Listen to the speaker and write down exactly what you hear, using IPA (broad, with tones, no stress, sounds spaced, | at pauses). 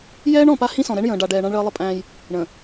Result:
j ɛː˦ ɳ ɔ̃˨ p a˦ h ĩ˦ s ɔ̃˨ ɾ ɛ˦ ɳ j ə̃ː˨ ɖ a˨ ɖ ɛː˨ ɳ ã˦ ɳ ɭ əː˦ lˠ ə˦ pʼ æ̃ː˦ j | ɳ ə̃ː˨